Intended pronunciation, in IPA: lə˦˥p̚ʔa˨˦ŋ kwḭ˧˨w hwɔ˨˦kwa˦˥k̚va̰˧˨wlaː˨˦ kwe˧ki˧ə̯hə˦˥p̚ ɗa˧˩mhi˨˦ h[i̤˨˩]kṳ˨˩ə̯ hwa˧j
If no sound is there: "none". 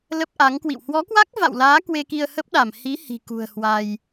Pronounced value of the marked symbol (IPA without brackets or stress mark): i̤˨˩